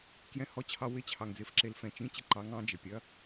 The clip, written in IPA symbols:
kjɛ̃˧hɔ˧t͡ɕʰɑ˧wɪ˧˥ t͡ɕʰɑ˧ŋ d͡zɪ˧fǁe˧lfɛ̃˧t͡ʃĩ˧˥ t͡ɕɪ˧˥ǃɑ˧˥ŋ ɑ̃˧˥d͡ʒɪ˧ pʲɐ˧˥

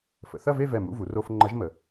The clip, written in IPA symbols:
fə̰˩˧ θɐ˥˧ve˥˧vɛ˧˩ mṵ˧˥˧vu˩˧ro˧˥˧fŋ͡ǃɐ˧˥ʒ mə˩˧

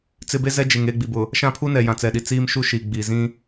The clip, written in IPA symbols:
t͡sɪ˦ be˦zɛ˦d͡ʒe˨ŋ eː˦˨ɡ͡bi˨bʊ˨ | ʃã˦˨pʰu˦ nɛ˨jã˨t͡sɛ˨ɗi˨ t͡siː˦m ʃu˦ʃiː˨ ɡ͡biː˨zĩ˦

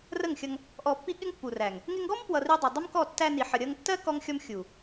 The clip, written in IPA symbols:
rə˦˨ŋxʲʌ˧ŋ | ʔɔ˨pːi˧ ɠɪ˦ŋpːu˨ræ˨ŋ | ŋɪ˧ŋɡɔ˦mpwʌ˨ ri˧dˤʌ˨dˤə˦mkɔ˦˨ tːæ˧ni˨ ħə˨ɾʲʌ˧ŋtːɜ˦ kɔ˦ŋxʲɔ˦m xʲu˨

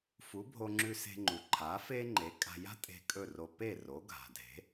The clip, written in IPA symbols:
fu˩˥bʱo˧ŋ͡ǁʉ˧se̤˧ ŋ͡ǃu˩ǃʰa˩˥ fe˥ ŋ͡ǃe˩˥kʼa̤˧ ja̤˥tʼe̤˧ kʼɵ˥˩ro˧ pe˥˩ ro˩˥ɡʱa̤˩dʱe̤˩˥

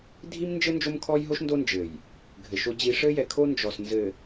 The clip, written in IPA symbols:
dʱi˦mnd͡ʒɘ˦ nd͡ʒo˦mkʰɔ˦jɦo˦ʃ ndo˦nd͡ʒɘ˨j | ɡʱɘ˨ʃo˦d͡ʑi˦ ʂɘ˦jɛ˨kʰo˦ nd͡ʒɔ˨snzɘ˨

